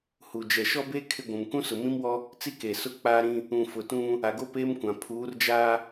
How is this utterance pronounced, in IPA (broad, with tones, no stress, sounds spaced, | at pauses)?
h u˨ d͡ʒ ɛ˨ ʃ ɔ˦ b eː˦ kʰ ɪ˦ ɡʷ ũ˨ m k ũ˦ s ʊ˨ m ĩ˦ m w ɔ˦ | t͡s i˦ k e˨ s ʊ˦ k͡p aː˦ ɾ ĩ˦ | ũ˨ f ʊ˨ t ũ˦ | a˨ ɡ o˦ p eː˦ m kʷ ã˨ pʰ uː˨˦ r d͡ʒ aː˦